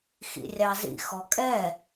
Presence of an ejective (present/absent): present